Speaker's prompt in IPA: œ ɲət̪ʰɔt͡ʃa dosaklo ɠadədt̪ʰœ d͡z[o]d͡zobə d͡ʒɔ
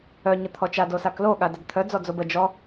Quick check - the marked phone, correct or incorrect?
incorrect